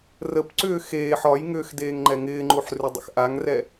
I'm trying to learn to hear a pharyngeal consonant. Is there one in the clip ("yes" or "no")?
yes